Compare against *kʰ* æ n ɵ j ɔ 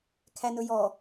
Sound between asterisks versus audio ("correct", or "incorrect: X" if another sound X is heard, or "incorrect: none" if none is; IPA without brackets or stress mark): correct